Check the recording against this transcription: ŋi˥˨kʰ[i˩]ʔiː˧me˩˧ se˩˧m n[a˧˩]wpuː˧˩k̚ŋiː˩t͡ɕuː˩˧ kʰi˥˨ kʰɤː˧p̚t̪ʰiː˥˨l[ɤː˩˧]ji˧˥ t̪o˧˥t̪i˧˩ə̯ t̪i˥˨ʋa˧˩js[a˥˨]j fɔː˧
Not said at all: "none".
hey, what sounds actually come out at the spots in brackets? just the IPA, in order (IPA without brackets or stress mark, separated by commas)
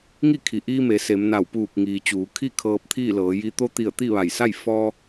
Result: i˩, a˧˩, ɤː˩˧, a˥˨